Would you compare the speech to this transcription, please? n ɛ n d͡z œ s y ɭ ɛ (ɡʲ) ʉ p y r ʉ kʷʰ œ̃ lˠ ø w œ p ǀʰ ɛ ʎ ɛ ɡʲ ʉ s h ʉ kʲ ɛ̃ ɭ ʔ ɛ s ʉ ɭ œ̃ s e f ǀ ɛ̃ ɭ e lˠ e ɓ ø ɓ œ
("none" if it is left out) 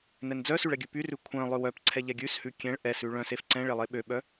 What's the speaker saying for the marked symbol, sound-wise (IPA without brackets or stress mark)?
ɡʲ